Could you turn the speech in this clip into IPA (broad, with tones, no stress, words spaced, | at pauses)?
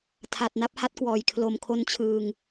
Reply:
tʰa˨˩t̚na˥˩p̚ ha˦˥t̚kwɔː˨˩jkʰlo˧m kʰo˧nt͡ɕʰɯː˧ŋ